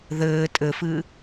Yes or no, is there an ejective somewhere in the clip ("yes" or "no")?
yes